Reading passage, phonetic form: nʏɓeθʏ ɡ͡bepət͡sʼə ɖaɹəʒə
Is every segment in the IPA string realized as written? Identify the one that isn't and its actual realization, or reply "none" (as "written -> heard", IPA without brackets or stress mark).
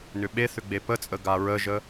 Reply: ɖ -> ɡ